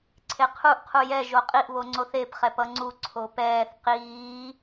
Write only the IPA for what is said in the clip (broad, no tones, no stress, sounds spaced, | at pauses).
ǀʰ e qʰ u ʔ qʰ u j ɛ ʒ o qʼ i ʔ β o ŋ͡ǀ o θ e p χ ɛ p ʌ ŋ͡ǀ u ǀʰ o p ɛː θ q iː